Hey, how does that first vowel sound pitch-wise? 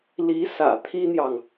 rising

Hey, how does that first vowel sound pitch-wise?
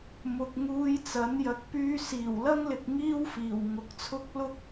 low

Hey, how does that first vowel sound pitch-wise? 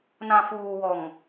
low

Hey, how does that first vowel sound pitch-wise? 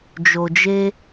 low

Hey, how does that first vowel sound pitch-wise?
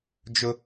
high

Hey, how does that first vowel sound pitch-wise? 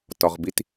low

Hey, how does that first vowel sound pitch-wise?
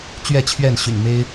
falling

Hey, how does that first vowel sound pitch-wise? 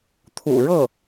low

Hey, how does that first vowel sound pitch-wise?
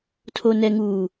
low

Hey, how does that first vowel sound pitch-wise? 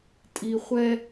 low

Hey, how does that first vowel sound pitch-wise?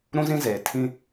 high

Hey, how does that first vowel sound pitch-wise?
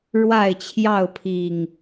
falling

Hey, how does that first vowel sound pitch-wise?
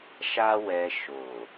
high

